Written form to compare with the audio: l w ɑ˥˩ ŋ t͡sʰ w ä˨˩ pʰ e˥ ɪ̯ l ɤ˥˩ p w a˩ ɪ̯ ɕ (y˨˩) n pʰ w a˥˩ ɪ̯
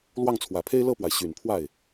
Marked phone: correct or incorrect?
correct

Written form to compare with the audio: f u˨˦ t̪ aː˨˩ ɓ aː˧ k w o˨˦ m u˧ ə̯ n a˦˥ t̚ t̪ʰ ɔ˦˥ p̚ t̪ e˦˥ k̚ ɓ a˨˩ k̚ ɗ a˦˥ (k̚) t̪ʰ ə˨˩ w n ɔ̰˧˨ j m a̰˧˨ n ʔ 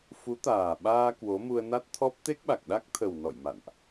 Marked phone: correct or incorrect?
correct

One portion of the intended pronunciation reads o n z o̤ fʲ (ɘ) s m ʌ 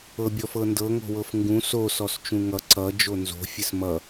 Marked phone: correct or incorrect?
correct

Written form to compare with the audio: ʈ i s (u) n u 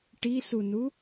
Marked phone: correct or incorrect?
correct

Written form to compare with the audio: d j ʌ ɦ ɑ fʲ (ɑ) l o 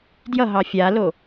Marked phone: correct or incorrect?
incorrect: a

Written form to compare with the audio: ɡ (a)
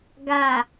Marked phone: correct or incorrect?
correct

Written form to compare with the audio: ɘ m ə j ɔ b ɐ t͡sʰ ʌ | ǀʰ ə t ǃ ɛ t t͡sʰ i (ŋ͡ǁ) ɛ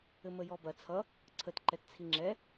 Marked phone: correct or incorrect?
correct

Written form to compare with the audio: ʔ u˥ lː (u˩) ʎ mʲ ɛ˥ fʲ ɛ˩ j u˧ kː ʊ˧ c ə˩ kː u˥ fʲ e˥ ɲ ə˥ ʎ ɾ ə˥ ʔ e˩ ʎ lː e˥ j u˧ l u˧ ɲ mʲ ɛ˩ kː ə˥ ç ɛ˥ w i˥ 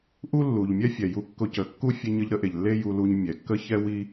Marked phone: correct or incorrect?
correct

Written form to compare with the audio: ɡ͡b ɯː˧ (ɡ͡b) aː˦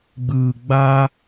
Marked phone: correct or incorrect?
correct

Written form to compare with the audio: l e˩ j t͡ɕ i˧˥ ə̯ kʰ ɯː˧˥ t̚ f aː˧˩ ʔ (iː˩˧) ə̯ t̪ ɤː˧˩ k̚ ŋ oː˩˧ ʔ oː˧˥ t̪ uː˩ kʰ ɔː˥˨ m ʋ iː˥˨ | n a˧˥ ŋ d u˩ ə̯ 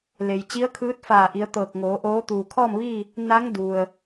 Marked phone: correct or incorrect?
incorrect: i˩˧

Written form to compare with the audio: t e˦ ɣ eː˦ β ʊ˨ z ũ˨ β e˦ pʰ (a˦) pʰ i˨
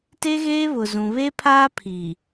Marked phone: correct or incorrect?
incorrect: aː˦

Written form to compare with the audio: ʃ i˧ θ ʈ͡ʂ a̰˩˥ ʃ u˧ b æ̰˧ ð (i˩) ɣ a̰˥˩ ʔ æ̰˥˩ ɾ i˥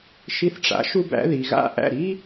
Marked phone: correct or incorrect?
correct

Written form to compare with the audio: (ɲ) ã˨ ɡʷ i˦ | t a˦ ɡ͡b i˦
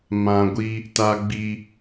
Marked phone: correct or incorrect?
incorrect: m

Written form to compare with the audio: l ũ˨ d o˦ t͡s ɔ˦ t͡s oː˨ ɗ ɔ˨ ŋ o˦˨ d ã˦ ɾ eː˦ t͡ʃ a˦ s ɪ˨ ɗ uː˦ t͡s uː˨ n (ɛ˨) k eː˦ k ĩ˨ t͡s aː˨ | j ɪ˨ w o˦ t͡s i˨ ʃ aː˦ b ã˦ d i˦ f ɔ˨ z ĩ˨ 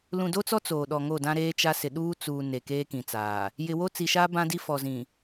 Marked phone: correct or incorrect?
incorrect: e˨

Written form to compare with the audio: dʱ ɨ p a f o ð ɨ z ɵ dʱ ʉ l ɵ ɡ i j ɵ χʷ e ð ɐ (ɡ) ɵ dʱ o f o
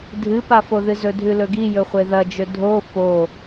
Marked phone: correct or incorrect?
incorrect: d͡ʒ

